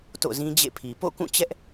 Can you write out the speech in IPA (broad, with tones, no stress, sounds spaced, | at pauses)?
t o̰˦˨ z ĩ˦ d͡ʑ ḛ˦˨ pʰ i˨ p o̰˦˨ k ũ˦˨ t͡ɕ ɛ˦ ʔ